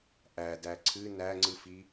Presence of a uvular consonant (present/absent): absent